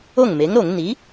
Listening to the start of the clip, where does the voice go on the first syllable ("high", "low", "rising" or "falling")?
falling